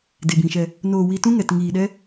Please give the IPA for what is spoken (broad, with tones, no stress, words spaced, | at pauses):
de˨bĩ˨ʃɛ˧ | noː˧ wi˧tũ˦ ŋɛ˧tŋiː˧ɗɛ˦